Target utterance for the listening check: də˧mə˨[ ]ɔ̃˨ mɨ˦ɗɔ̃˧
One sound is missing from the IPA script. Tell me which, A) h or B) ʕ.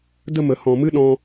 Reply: A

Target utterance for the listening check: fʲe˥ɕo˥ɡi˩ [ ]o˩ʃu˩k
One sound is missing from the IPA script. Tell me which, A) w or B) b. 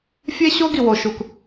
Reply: A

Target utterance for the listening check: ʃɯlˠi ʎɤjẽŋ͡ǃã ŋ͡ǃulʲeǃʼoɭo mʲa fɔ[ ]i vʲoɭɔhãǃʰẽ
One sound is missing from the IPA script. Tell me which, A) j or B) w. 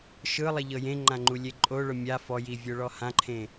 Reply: A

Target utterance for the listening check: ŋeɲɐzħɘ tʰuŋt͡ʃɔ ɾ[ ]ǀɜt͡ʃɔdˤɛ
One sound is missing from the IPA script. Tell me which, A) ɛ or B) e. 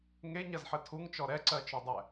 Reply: A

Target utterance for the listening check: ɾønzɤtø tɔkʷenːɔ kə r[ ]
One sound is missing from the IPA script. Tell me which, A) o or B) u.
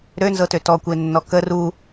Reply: B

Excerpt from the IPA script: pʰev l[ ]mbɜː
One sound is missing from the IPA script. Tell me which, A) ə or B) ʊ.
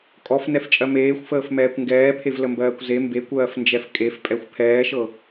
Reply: A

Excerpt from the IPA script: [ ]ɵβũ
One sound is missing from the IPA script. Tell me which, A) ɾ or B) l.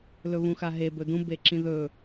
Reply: B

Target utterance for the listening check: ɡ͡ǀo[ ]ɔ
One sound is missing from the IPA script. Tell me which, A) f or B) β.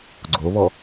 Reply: B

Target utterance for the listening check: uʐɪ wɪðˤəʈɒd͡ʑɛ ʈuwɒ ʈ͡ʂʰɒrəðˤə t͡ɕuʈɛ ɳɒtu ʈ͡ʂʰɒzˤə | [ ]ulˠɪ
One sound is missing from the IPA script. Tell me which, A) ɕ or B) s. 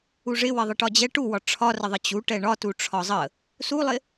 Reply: B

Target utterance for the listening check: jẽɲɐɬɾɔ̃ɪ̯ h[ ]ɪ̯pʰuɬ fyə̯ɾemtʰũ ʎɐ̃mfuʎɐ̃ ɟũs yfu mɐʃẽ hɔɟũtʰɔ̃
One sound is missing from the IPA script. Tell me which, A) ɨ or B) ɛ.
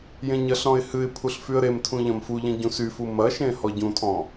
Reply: A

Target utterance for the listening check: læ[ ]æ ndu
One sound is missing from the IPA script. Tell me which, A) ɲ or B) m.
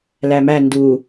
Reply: B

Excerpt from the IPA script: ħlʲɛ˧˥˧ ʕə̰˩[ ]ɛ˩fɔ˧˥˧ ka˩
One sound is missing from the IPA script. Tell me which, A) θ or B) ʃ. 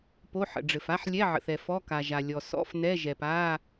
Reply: A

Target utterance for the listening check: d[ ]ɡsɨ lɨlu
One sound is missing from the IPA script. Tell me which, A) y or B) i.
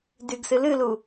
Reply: A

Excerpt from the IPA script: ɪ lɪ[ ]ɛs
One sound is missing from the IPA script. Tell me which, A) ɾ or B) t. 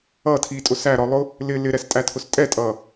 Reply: A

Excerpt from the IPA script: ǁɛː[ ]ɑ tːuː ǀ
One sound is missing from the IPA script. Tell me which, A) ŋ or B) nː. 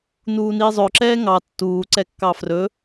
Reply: A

